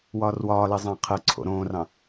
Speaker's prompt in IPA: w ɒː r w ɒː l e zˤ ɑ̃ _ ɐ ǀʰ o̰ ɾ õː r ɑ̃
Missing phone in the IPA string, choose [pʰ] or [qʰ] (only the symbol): qʰ